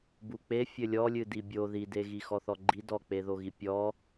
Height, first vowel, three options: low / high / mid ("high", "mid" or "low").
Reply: high